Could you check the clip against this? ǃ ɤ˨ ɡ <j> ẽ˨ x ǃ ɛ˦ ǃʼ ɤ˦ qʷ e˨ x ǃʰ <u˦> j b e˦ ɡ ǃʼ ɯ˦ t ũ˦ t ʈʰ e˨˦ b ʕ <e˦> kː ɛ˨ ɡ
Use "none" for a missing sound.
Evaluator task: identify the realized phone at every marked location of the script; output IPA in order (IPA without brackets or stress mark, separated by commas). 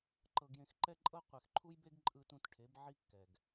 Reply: j, u˦, i˦